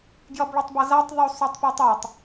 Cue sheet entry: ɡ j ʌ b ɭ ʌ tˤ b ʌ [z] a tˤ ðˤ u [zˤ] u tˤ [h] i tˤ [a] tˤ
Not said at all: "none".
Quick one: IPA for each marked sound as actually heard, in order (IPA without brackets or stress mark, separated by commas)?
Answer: z, sˤ, p, ʌ